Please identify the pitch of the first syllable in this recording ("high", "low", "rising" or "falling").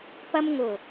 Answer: high